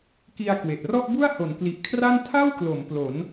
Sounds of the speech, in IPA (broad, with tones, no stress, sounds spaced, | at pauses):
k i˧ a̯ k w e˨˩ ʔ r ɔ˥˩ ʔ b u˥˩ a̯ h o˩˦ n k l i˨˩ ʔ kʰ r a˥˩ n tʰ a˥˩ w k l o˩˦ m p l o˩˦ n